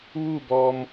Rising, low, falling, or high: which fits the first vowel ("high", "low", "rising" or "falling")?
falling